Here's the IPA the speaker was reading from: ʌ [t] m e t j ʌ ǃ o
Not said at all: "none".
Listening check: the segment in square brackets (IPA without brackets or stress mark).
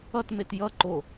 t